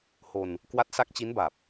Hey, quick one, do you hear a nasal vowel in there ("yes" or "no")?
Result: no